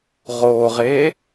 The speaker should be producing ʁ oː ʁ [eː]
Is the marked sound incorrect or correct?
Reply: correct